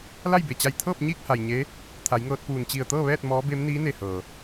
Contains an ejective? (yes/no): no